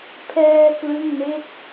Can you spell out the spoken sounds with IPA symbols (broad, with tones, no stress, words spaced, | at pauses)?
pʰɛː˧ klɯ˥˩ŋme˥˩k̚